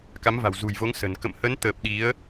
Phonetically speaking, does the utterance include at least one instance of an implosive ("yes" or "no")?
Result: yes